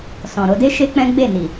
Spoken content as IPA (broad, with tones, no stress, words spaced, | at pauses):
sɔ̃˨ ɾo˧de˦ ʃe˦k͡pɛ̃˦ ɡ͡be˦˨ni˨